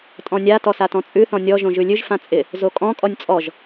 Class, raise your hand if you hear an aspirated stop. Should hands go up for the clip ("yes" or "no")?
no